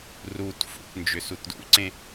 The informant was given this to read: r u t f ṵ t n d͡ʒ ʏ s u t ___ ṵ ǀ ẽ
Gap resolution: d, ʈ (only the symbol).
d